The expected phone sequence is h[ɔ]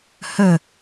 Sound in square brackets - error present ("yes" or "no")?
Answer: yes